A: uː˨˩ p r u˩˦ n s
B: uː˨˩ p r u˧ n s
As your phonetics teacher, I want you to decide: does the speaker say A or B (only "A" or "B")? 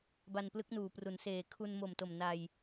A